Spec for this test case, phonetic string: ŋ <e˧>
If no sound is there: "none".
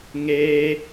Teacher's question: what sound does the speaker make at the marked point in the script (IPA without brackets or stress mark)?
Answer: eː˧